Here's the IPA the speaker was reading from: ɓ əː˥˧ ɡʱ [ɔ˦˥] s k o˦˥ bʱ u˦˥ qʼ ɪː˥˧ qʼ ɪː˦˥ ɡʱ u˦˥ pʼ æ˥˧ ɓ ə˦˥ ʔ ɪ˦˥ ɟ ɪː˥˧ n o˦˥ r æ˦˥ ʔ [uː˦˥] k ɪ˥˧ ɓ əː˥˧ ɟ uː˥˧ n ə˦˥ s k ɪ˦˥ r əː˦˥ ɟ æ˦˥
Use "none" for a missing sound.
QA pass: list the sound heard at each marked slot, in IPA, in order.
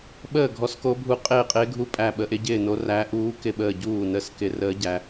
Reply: ɔ˦˥, uː˦˥

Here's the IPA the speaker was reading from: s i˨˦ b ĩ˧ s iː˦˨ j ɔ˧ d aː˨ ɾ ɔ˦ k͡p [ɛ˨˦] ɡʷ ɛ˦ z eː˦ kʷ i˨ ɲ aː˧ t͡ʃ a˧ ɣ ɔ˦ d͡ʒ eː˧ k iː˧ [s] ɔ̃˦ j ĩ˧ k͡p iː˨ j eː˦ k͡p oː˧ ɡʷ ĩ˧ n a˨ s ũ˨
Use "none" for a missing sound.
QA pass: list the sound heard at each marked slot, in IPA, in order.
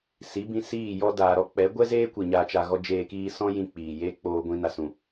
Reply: ɛ˨˦, s

